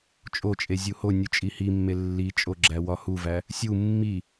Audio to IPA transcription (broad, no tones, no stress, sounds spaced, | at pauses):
t͡ʃʼ o t͡ʃʼ e zʲ u h o nʲ u t͡ʃʼ i h i mː e lː i t͡ʃʼ o ɡ͡ǁ æ w ɒ h u v æ | sʲ u mː i